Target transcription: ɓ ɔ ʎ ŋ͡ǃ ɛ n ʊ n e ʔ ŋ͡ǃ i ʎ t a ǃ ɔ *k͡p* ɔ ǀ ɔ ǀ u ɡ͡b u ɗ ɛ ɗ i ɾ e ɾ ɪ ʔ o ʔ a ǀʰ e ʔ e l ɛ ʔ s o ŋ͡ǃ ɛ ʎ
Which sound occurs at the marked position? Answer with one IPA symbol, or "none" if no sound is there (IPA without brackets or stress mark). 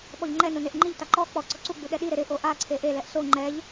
k͡p